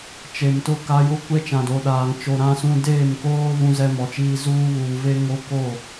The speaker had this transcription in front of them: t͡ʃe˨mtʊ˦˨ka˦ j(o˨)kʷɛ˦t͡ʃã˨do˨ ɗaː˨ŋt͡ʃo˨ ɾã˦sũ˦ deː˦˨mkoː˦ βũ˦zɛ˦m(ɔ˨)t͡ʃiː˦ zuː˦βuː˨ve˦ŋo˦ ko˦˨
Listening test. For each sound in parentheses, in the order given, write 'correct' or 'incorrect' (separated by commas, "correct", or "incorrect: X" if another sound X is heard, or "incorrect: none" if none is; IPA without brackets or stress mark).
incorrect: o˦, correct